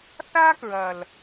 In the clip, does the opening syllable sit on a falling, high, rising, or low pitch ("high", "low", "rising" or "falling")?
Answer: high